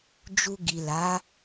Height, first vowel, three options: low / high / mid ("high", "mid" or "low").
high